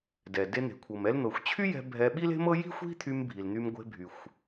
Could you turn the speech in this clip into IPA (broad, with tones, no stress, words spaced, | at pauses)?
dɛ˩ de˧n̪e̤˩kʷʰɤ˩m ɛ˧ln̪ɤ˩xʷt͡ɕʰy˥jɛ̤˧ bʱɛ˧ ɓi˥le̤˥mɤ˥ ji̤˥ xʷi̤˥t̪ʰy˧m bʱi˩ln̪y˧mɡʷe̤˧ bʱy˩xʷ